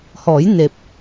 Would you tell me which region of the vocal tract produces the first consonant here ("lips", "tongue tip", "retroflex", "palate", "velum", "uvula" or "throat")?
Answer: throat